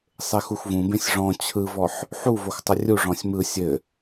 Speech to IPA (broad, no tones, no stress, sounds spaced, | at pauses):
sˤ e x u x v ũ b ẽ sʲ ʐ ɔ̃ t͡ɕʰ ɯ v ɔ ħ | ħ u v o x tˤ ə rʲ u ʐ ɔ̃ sʲ m ɯ sʲ ɘ